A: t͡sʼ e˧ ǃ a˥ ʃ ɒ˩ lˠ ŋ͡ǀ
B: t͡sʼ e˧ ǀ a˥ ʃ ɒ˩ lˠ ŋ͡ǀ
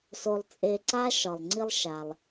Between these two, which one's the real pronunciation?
B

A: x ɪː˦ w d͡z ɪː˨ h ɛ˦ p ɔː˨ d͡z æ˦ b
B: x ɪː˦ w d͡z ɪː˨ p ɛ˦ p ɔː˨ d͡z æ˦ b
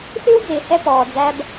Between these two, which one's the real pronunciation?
A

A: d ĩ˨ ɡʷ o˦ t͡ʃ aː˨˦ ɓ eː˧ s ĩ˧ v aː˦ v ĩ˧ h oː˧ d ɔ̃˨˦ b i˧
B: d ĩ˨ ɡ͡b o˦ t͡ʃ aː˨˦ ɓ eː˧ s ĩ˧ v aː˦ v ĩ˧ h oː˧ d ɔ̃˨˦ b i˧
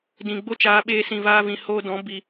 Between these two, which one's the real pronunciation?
B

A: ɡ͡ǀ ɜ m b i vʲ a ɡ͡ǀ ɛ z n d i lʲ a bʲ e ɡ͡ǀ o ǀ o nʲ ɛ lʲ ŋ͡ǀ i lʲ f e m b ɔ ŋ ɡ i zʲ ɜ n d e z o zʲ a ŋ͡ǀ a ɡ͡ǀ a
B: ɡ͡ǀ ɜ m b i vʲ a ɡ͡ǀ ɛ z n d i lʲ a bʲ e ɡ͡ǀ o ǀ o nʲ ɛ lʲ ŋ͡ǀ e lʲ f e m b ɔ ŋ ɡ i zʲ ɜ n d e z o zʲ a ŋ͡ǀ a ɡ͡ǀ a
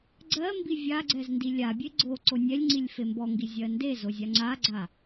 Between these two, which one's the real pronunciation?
A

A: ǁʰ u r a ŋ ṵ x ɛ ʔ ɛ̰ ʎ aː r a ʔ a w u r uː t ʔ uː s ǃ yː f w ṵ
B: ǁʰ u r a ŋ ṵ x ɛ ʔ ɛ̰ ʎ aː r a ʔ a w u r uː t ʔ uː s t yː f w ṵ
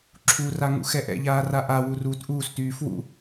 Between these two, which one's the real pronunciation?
B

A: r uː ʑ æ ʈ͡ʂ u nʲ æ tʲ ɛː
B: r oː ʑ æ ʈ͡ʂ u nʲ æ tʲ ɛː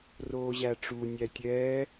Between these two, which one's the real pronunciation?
B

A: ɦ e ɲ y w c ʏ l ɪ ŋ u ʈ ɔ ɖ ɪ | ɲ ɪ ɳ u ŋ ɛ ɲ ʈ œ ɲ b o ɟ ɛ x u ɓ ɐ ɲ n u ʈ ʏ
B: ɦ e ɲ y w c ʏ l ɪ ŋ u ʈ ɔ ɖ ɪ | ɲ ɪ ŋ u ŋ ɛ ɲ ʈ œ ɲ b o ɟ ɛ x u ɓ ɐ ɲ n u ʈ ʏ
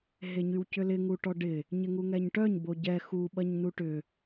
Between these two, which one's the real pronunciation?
B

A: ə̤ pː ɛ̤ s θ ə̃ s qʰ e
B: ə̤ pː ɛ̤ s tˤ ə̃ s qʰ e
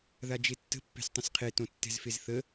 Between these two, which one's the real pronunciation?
B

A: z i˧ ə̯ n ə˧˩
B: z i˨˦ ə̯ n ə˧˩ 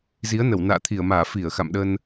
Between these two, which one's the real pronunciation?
B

